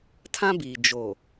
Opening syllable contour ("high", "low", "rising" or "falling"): high